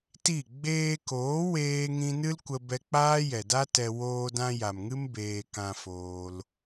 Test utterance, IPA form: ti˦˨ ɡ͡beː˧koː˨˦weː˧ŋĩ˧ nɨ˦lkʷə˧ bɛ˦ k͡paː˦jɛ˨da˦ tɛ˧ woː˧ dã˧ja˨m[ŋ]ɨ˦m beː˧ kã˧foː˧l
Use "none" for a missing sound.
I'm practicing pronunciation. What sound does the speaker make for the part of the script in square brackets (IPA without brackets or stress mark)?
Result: ŋ